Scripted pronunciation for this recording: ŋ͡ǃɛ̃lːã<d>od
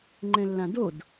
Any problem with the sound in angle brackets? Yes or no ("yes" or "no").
no